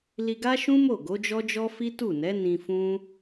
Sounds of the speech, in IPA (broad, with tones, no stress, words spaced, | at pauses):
li˧ɡa˦ʃũ˦mo˦˨ ɡo˨˦d͡ʒɔ˦d͡ʒɔ˦ fi˦tu˦˨nɛ˨˦ nĩ˧ fũ˦